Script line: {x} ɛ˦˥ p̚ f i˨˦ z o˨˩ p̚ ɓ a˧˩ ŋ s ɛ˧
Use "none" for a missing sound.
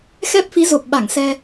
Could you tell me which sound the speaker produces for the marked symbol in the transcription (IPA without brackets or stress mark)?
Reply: x